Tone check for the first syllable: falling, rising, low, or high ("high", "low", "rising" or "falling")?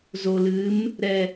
low